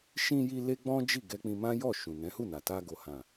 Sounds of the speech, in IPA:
ʃĩ˧ji˧ le˦ɡ͡bɔ̃˦d͡ʒi˦˨ ɡɛ˧k͡pĩ˧ mã˦jɔ˦˨ ʃũ˨nɛ̃˨˦hu˦˨na˨ ta˧ɡo˨hã˨

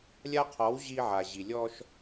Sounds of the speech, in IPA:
lʲa˦qʰɔ˨˦w ʑi˦ʕa˨ʑi˨ lʲɔ˦ʃ

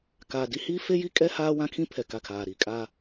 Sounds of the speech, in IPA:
ka˨ di˦hiː˦ fe˦ji˦ kʼɛ˦haː˦ wã˦kʰĩ˦ pʰɛ˨ka˦˨kʰaː˨ ɾi˨ kʼa˦

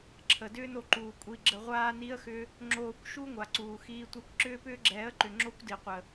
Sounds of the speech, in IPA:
ǁʰə˨dʏː˦no˧ ǃuː˨kʷʼi˧ ɡ͡ǁə˧ʁʷaː˦ni˦ə̯xʏ˦ | ŋ͡ǁoː˧kʷʃu˦ ŋʷa˨ǀuː˨ xiː˧tʷɛ˧kʷ ǁʏː˦pʏː˦ɡ͡ǁɛː˨˦ə̯ǃʏ˨ ŋ͡ǁo˦kʷdi˨qʷə˨

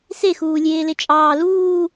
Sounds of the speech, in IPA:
sexuːlʲeː let͡ʃʼɑː luː

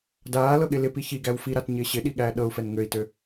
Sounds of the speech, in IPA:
daːlɤɠɪ lɪpi çiɡæw fiɾatɲɪː ɕɪɗiɠæː ɗɤu̯fɛn ŋøi̯tø

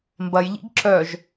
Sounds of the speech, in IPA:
mbɐjʎḭɡ ǁœʒ

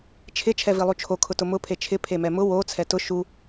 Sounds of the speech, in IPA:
t͡ʃʰɪ t͡ʃʰɛvilˠut͡ʃʰo kʰʊtʊmʊ pʰet͡ʃʰɪ pʰemɛmʊ wo t͡sʰɛtʊ ʃu

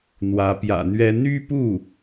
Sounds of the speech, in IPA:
n̪wä˧˥pjä̰˨˩n̪ɥɛ˥ n̪y˥pu˥˩

